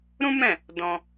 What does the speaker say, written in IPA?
ɾ ũ˦ m ɛ̃˦˨ | d ɔ̃˧

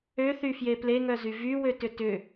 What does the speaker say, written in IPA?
ø θ y f j e p l e ŋ œ z y v y w ø t ʏ t ʏ

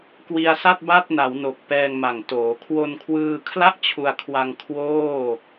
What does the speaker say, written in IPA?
k w i˧ a̯ s a˥˩ t̚ b a˥˩ t̚ n a˩˦ w n o˨˩ k̚ p ɛː˧ ŋ m a˨˩ ŋ t oː˩˦ kʰ w o˧ n kʰ w ɯː˧ kʰ l a˥˩ ʔ t͡ɕʰ u˧ a̯ kʰ w a˧ ŋ kʰ w oː˥˩

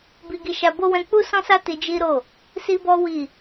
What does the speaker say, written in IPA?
b i˧ ɡ i˧ ʃ a˧ b o˦ w ɛ̃˧ k͡p u˦ s ɔ̃˦ s a˦ t i˧ d͡ʒ i˦ ɾ o˦˨ | s i˦ b ɔ˦ w i˦˨

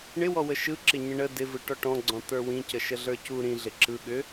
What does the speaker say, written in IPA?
ɳ ɪ w ɔ w ə ʃ ɯ ǁ ɪ ɲ ə̃ ɳ ə d ɪ v ɯ ʈ ɔ ʈ ɔ̃ ɡ͡ǀ ɔ̃ t̪ ə˞ w ĩ c ə ʃ ə ɮ ə˞ c u ɾ ĩ ɮ ɪ ǁ ɯ ɠ ʏ

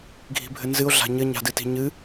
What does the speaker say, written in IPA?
ɡʱ i̤ bʱ ɘ n z ɨ o̯ ɮ a̤ ɲ ɘ ɲ a̤ d ɨ t i̤ ɲ ɨ

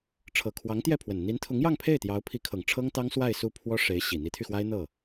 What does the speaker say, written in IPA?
ʈ͡ʂʰ ɤ˨˩ kʰ w ɑ˧˥ ŋ t̪ j ɛ˥˩ pʰ w ə˨˩ n n̪ i˧˥ n t̪ʰ ʊ˧˥ ŋ j ɑ˥˧ ŋ pʰ e˥˩ ɪ̯ t̪ j ɑ˧˥ ʊ̯ pʰ i˧˥ kʰ ɤ˨˩ ŋ ʈ͡ʂʰ ɤ˥ ŋ t̪ ɑ˥ ŋ s w a˥˧ ɪ̯ s u˥˩ pʰ w ɔ˥ ʂ e˧˥ ɪ̯ ɕ i˨˩ n̪ i˧˥ t̪ʰ y˧ x w a˥ ɪ̯ n̪ ɤ˥˩

